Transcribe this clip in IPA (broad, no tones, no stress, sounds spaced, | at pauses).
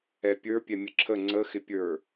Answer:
ɛ pʲ ə˞ pʲ ɛ mʲ ə ǁʰ ə ŋ͡ǀ ə x ɪ pʲ ə˞